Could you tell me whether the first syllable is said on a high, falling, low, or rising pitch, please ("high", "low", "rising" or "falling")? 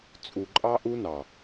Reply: low